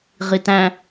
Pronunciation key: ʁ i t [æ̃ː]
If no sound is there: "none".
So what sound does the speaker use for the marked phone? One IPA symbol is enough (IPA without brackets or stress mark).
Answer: æ̃